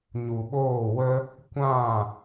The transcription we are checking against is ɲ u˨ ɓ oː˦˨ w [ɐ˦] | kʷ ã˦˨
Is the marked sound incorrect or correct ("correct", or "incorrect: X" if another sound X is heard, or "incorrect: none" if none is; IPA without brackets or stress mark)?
incorrect: ə˦